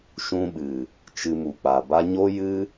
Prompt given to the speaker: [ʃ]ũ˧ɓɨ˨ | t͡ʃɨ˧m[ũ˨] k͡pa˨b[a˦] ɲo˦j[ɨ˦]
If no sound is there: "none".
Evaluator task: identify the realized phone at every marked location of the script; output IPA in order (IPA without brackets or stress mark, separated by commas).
ʃ, u˨, a˦, ɨ˦